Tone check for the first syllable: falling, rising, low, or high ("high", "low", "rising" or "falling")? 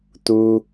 high